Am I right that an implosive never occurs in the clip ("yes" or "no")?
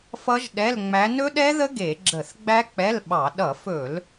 no